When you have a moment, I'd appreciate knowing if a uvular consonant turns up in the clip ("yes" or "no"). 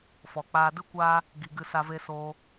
no